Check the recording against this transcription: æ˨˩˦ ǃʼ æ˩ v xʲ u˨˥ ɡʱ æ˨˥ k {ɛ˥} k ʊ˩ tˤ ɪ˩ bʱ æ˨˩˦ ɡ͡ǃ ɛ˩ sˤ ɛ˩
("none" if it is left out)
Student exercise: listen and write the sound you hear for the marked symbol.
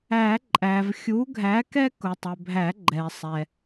ɛ˥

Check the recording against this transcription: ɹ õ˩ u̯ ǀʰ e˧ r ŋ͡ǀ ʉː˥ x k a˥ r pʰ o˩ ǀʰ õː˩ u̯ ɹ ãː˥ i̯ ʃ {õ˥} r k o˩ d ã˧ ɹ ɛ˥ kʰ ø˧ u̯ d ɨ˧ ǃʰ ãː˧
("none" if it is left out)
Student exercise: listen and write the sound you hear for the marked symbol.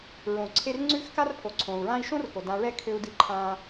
õ˥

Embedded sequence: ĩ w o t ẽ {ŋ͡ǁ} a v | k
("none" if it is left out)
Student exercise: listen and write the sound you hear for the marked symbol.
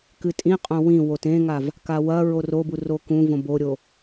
ŋ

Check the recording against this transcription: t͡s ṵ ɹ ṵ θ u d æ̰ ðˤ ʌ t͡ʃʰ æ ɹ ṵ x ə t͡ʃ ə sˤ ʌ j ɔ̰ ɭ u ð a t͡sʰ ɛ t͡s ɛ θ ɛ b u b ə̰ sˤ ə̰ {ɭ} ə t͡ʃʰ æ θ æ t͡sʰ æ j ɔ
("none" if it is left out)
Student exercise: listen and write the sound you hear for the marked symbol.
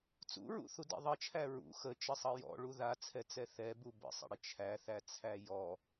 ɽ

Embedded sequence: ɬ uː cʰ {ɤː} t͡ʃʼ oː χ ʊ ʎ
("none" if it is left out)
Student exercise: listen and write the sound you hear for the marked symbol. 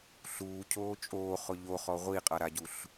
oː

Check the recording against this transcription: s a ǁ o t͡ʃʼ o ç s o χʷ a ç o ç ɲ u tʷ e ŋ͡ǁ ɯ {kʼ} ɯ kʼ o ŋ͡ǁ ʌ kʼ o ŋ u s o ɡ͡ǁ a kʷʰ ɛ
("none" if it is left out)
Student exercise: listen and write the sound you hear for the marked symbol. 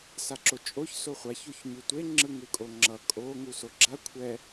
ŋ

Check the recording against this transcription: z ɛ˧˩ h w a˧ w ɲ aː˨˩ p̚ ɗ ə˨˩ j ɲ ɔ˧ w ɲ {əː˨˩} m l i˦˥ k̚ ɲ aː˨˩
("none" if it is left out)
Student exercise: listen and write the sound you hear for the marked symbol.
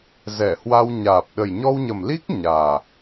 ə˨˩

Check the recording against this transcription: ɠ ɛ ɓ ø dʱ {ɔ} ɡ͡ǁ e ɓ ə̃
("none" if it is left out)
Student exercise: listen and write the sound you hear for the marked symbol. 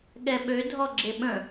ɔ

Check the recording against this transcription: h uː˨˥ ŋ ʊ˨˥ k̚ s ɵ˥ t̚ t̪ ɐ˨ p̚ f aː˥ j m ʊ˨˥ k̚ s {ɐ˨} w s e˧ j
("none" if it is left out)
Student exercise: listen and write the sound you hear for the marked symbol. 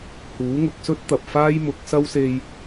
ɐ˥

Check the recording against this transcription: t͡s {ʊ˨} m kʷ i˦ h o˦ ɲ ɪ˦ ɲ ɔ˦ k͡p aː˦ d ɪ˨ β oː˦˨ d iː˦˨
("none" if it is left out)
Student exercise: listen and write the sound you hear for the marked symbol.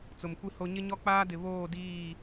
ʊ˨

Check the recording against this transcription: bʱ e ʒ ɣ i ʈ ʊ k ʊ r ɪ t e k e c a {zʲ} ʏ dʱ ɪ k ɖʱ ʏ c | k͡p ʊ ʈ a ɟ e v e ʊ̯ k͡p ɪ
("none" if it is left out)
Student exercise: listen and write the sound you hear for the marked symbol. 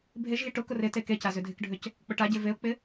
z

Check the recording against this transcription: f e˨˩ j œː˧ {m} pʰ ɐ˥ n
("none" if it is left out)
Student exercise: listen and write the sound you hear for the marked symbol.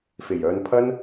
n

